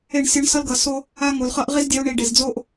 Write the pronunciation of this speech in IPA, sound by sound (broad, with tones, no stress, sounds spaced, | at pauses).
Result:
e˦˨ ɳ sʲ ʌ˦ ɳ s ʌ˦ l ɡ ʌ˨ s o˦ | a˦ ŋ o˨ l χ ʌ˦ ʔ ʁ i˦ z dʲ ɛ˦ u̯ ɳ i˨ ɖ e˨ z d͡z o˦ ʔ